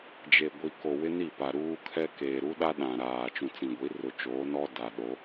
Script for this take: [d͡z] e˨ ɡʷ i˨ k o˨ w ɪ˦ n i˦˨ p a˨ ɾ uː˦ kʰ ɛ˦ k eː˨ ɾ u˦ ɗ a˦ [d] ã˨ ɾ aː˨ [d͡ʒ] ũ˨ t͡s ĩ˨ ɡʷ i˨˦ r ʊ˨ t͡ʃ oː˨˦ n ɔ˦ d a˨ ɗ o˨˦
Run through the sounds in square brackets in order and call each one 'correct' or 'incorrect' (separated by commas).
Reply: incorrect, incorrect, incorrect